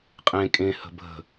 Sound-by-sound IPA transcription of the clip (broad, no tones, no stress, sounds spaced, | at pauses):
qʼ ẽ kʼ ẽ h ə̤ bʱ ə̤